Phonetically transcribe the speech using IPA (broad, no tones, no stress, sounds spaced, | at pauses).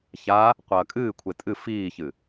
ç a | qʷ ɐː kʼ ɨː kʷʰ e tʼ ɨ f iː ç ɨ